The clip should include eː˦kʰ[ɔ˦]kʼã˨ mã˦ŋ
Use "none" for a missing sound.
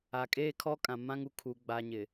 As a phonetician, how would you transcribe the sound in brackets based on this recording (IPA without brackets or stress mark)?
ɔ˦